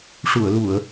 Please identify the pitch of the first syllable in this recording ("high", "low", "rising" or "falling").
low